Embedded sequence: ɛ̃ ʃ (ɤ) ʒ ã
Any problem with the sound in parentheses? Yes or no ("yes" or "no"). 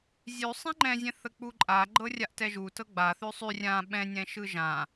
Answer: yes